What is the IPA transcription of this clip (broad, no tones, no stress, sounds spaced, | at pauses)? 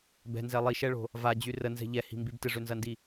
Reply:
b ɛ̤ n z ɛ lˠ i ʃ ɛ ɭ o̤ | v a d͡ʑ y r ə n z ɛ̤ ʎ ɛ h i̤ m b i b t ɪ ʐ ø n z ɐ n d i